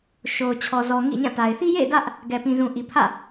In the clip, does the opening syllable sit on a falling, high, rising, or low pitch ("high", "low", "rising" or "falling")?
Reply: low